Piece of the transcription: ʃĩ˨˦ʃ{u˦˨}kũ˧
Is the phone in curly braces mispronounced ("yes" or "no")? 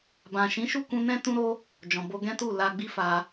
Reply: no